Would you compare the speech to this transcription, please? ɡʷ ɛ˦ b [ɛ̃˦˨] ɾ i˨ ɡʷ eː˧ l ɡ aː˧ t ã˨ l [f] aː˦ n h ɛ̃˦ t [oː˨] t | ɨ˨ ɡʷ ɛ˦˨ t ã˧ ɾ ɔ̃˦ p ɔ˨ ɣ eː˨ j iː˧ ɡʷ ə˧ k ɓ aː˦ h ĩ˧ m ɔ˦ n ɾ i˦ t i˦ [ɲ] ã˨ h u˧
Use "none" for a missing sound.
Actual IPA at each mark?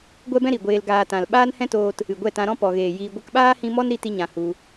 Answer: ɛ̃˦, ɓ, oː˧, ɲ

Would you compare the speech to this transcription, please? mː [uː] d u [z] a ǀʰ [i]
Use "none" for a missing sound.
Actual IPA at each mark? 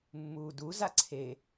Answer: uː, z, e

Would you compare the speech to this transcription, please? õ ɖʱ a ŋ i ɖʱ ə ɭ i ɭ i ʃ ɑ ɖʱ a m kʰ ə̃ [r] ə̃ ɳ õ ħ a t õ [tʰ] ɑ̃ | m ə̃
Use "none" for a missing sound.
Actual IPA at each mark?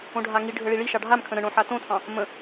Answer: ɾ, tʰ

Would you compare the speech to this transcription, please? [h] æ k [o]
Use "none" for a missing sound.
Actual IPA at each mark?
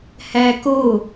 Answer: h, o

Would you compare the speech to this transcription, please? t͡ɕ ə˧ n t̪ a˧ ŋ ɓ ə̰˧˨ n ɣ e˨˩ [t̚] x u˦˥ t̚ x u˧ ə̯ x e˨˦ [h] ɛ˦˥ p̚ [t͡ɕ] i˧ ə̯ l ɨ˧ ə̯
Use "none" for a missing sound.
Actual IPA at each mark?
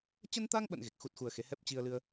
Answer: k̚, h, t͡ɕ

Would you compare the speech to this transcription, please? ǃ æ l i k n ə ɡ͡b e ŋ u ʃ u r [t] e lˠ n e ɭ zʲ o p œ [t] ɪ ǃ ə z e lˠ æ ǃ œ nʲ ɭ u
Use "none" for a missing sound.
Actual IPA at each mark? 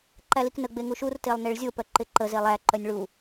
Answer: t, ǃ

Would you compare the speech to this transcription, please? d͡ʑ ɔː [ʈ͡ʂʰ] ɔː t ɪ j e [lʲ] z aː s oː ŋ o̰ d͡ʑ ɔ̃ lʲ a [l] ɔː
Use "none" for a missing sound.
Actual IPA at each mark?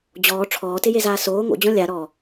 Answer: ʈ͡ʂʰ, none, ɾ

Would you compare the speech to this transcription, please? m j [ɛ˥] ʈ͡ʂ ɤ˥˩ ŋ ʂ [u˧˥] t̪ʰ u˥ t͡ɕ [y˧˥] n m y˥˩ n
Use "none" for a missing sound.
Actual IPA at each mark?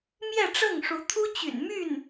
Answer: ɛ˥˧, u˧˥, y̰˨˩

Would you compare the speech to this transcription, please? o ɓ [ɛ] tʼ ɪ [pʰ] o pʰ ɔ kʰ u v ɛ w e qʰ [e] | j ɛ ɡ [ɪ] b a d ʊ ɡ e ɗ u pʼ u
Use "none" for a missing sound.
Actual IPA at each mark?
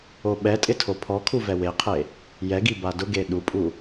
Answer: ɛ, tʰ, e, i

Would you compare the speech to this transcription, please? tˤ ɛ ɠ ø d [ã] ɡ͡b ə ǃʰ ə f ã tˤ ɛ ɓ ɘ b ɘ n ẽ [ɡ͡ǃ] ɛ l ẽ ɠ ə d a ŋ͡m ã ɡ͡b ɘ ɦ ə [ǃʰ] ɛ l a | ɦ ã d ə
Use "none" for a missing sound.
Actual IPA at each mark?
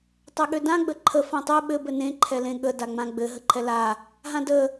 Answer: ã, ǃʰ, ǃʰ

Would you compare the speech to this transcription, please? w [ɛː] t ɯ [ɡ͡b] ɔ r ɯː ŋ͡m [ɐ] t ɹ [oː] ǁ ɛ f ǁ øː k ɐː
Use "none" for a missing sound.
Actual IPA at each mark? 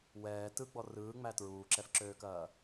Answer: ɛː, ɡ͡b, æ, uː

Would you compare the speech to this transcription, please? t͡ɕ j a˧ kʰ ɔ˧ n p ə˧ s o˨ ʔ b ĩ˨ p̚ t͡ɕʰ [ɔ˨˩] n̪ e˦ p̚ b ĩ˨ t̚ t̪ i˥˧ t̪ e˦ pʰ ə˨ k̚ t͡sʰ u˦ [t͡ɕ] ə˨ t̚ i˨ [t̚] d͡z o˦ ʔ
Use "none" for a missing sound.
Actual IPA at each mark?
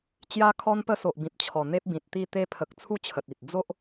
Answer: ɔ˨˩, t͡ɕʰ, t̚

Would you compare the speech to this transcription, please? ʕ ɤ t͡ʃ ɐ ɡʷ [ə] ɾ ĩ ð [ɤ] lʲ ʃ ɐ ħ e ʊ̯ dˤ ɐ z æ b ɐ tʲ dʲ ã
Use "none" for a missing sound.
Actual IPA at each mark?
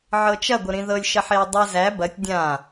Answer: ə, ɤ

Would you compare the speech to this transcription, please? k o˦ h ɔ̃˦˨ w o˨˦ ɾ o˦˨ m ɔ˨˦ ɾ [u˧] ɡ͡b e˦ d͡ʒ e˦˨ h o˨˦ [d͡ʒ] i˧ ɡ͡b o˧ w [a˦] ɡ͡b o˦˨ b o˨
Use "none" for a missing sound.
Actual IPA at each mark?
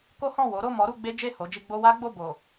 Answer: u˧, d͡ʒ, a˦

